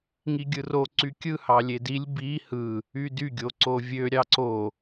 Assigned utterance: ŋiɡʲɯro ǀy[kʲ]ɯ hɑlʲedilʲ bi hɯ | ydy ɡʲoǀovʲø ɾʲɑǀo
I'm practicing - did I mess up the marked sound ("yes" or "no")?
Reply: no